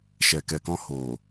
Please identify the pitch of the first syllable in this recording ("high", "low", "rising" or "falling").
low